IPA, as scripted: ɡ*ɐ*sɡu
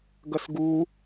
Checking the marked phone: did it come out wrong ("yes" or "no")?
no